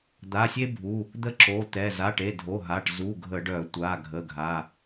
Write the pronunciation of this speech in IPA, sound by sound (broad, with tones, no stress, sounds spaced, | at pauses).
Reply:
d̪ a˩˧˩ sʲ e˥ bʱ u˩˧˩ | d̪ ə˥ ǁ o˩˧˩ t̪ ɛ˩˧˩ z a˩˧˩ ʈ e˩˧˩ dʱ o˩˧˩ ɦ a˩˧˩ ʈ z u˩˧˩ ɡʱ ə˧˩˧ ɖ œ˧˩˧ tʷ a˩˧˩ ɡʱ ə˩˧˩ ɡʱ a˩˧˩